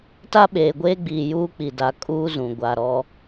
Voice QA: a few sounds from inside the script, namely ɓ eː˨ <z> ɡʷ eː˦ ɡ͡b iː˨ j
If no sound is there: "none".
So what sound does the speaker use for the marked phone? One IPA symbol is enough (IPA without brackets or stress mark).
none